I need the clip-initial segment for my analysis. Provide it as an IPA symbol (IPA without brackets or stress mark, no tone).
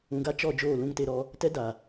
ũ